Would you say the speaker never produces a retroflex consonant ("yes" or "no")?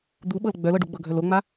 no